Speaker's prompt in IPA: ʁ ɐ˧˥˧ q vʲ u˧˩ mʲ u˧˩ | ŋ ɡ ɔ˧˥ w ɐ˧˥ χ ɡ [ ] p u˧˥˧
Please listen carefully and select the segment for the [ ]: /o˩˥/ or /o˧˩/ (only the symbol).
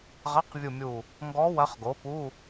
o˩˥